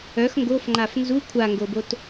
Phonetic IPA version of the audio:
œ x ŋ ɡ o f ŋ͡ǃ a f n z u kʷʰ a ŋ ɡ o b o t

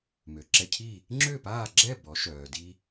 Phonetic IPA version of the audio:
m ø˩ ǁ ɛ˧ cʰ i˥˩ | ŋ͡ǁ ø˥˩ p aː˥˩ ɡ͡ǁ ɛ˥˩ b ɔ˩˥ ʃ œː˩ d i˧

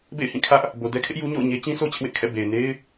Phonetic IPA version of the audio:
b ḛ˦˨ ɪ̯ h ĩ˦˨ kʰ ä˦ ʔ | b o˨ d ɛ˦ kʰ ɪ˦ ʔ j u˦ ɲ o̰˦˨ ʊ̯ ɲ e˦ t͡ɕ ĩ˦ sʰ o˦ t͡ɕ ɪ˦ ʔ w ɪ˦ ʔ kʰ ɛ̰˦˨ b e˨ ɪ̯ n e˦ ɪ̯

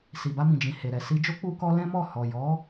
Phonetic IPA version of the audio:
s i˨ b a˧ m ĩ˨ d͡ʒ ĩ˨ h e˨ ɾ ɛ˨ s i˧ d͡ʒ o˦ k͡p u˧ k ɔ˧ l ɛ̃˦ m ɔ˦˨ h ɔ˨ j ɔ˨˦

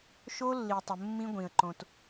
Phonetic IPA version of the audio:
ʃ o˦ lː i˨ tˤ ə˨ mː ĩ˦ ɡʷ ĩ˨ ə̯ ǃ õ˨ t

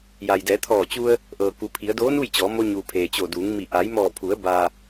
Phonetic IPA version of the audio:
j a˩ j d ɛː˩˧ t̪ʰ ɔː˧˩ t͡ɕ u˧ ə̯ | ʔ ɤː˩ k u˩˧ pʰ i˩˧ ə̯ d oː˧˥ n u˥˨ j t͡ɕ ɔː˩˧ m o˧ ɲ uː˩ pʰ eː˩ t͡ɕ o˧˩ d uː˩˧ ŋ m i˧˩ ʔ a˩˧ j m ɔː˧˩ pʰ u˩˧ ə̯ b a˩

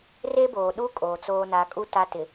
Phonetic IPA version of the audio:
r e˦ b oː˨ ɗ u˦ kʼ oː˨ t͡s oː˦ n a˨˦ kʼ u˦ t a˦ t ɪ˨

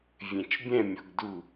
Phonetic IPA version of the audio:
vʲ ẽ t͡ʃ bʲ ɛ̃ mʲ ɔ ɡ d u

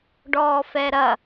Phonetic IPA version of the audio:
ɖ ɔː f ɛ ɾ ɐ

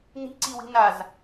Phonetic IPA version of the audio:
n i̤ ǀ i w i̤ n a z

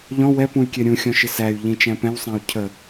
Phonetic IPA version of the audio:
ʎ ɔ̃ w ɛ p ũ y̯ kʲ ɛ ɾʲ ũ xʲ ɔ̃ ʃ ɪ s æ y̯ ʎ ĩ t͡ʃ æ̃ p ɛ̃ w sˤ æ̃ u̯ cʰ ə

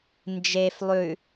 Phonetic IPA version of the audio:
n d͡ʒ e f lˠ ʉ

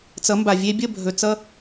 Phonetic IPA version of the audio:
t͡s ʌ˨˦ m b a˨ vʲ e˦ bʲ ə˦˨ bʱ ɵ˨ t͡s ʌ˦

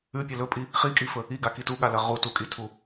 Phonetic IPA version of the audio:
ʉ pʲ ɐ l ɵ pʼ i | χ i kʼ i f ɵ | i ɡ a k i t u ɠ a l ɐ ʁ u t u kʼ i tʰ u

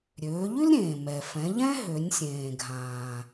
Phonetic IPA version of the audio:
ɾʲ øː˩˧ ʎ y˥ l ɾʲ ẽː˩ m ɛ˩ f ɛ̃˩˧ ʎ ɛ̃˥ ɦ ø˩˧ nʲ sʲ ẽː˩ ɡʱ ãː˩

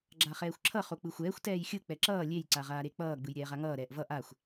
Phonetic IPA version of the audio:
ɡ͡ǁ a χ ɛː xʷ ǁʰ ʌ χ o k͡p ɯ xʷ ɛː xʷ t ɛː j xʲ ɯ k͡p ɛ ǁ ʌː lʲ e j ǀ a ʁ aː ɾ e k͡p ʌː ɡ͡b ɯ j ɾʲ ɛː ʁ a ŋ ʌː ɾ ɛː ʔ v ʌ ʔ a xʷ

